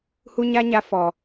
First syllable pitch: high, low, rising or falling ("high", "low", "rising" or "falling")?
high